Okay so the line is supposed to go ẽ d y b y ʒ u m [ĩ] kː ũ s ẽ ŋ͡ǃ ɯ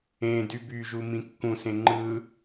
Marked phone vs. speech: correct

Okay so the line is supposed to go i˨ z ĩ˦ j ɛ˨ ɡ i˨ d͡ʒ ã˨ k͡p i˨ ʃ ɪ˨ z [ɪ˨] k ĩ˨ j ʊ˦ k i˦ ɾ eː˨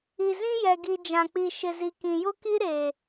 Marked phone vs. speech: incorrect: i˨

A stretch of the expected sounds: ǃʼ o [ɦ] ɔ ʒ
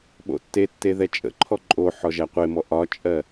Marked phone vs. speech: incorrect: ħ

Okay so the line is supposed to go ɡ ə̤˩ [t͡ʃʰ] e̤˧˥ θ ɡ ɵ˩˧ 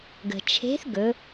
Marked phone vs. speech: correct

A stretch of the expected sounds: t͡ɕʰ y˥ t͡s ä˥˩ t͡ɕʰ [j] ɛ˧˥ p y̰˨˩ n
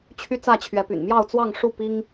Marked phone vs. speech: incorrect: ɥ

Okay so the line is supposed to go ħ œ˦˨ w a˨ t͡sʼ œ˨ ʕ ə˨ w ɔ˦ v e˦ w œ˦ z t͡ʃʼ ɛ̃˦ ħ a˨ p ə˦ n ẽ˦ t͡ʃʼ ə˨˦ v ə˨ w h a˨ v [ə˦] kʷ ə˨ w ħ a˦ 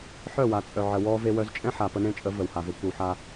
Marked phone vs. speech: correct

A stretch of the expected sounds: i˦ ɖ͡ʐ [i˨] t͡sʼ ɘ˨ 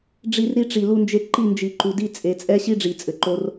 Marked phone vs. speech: correct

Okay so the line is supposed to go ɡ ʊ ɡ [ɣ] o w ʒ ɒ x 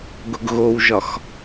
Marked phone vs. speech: correct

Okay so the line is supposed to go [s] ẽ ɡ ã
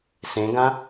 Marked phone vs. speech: correct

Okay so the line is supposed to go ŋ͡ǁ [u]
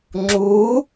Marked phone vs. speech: correct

